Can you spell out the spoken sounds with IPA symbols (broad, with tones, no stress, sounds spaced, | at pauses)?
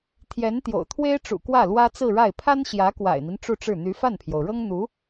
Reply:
t̪ʰ j ɛ˧˥ n t̪ j o̰˨˩ ʊ̯ t̪ʰ w e˥ ɪ̯ ʈ͡ʂ ṵ˨˩ k w ä˥˩ l w ä˥ t͡s ɹ̩˥˧ ɻ a˥˩ ɪ̯ pʰ a˥ n ɕ j ä˧˥ k w a̰˨˩ ɪ̯ n̪ i˦ n ʈ͡ʂ u˥˧ ʈ͡ʂ ɻ̩˥˩ n̪ y˧˥ f a˥˩ n pʰ j o˩ ʊ̯ ɻ ɤ˥ ŋ n̪ u˧˥